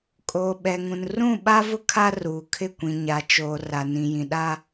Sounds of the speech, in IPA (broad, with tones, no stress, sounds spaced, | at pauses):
kʼ oː˨ ɓ ɛ˨ ŋ ũ˨ n r ũ˦˨ ɓ a˦ v ʊ˦ kʰ a˦ r uː˨ kʰ ɪ˦˨ kʷ ĩ˨ ɲ a˨ t͡ʃ oː˨ r a˨ n ĩ˨ j ĩ˨ ɗ a˦